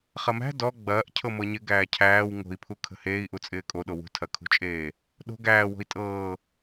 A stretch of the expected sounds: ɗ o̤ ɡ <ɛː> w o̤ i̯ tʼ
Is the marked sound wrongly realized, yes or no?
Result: yes